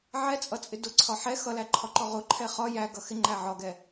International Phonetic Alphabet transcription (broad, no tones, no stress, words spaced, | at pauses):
ʕɛt͡sʼʌt͡sʼɪ dʊǀʰɒ ħɛ xʌlæǃʰɒǃɔ ʁʊǃʰɛ χɒ jæɡʌ xɪŋ͡ǃæ ʕɒɡɛ